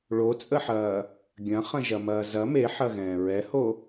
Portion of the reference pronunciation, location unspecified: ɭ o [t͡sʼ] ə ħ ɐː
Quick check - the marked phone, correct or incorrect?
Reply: correct